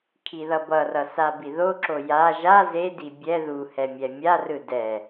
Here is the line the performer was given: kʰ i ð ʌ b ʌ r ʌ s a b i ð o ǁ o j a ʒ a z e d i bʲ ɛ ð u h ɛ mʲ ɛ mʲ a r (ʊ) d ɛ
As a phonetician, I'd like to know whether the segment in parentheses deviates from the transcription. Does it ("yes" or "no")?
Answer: yes